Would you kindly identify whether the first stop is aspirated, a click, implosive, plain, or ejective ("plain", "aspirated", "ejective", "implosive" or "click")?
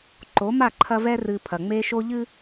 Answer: click